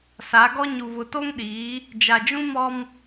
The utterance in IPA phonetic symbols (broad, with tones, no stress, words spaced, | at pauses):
sa˨˦ɡɔ˦ ɲu˨βʊ˨to˦ŋɗiː˨˦ | d͡ʒa˨d͡ʒũ˦mɔ˦m